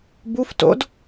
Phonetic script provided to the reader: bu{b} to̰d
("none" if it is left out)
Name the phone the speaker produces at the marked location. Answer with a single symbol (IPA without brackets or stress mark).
f